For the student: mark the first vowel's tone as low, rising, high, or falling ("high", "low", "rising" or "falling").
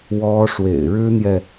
high